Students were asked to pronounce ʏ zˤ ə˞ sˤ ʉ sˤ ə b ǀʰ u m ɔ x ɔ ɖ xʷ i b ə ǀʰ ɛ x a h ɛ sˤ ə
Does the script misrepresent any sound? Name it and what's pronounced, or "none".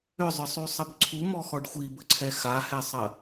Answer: none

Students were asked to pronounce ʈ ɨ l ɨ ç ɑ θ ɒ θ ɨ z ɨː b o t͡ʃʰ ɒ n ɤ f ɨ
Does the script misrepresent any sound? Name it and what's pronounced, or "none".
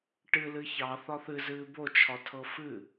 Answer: n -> tʰ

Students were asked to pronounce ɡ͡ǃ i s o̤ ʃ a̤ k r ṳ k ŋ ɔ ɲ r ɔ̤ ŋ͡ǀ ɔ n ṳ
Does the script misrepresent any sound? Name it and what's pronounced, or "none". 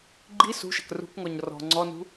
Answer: o̤ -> ṳ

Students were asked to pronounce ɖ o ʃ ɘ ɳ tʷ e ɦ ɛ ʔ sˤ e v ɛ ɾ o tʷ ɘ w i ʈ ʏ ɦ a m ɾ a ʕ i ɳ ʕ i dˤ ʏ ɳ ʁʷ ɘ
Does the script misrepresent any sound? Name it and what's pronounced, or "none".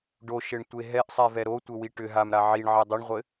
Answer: none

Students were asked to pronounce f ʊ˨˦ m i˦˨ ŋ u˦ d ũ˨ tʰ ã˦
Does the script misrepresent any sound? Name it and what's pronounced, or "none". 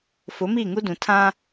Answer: none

